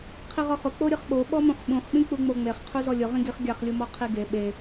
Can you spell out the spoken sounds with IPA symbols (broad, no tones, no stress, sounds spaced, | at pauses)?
qʰ i ʁ ɔ χ ʊ k͡p o ɾʲ ɯ χ ɓ o ɓ ɔ m ũ χ ɓ ũ χ ɓ ĩ k͡p u ŋ͡m o ŋ͡m e χ qʰ u z ɔ lʲ ʊ ʁ ĩ ɡ i χ ɡʲ a χ lʲ u m ɔ qʰ i ɡ e ɓ e